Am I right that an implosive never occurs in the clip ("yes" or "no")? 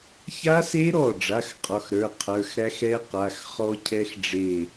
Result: yes